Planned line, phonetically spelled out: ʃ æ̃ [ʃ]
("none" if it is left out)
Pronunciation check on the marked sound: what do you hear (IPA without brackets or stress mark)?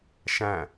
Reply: none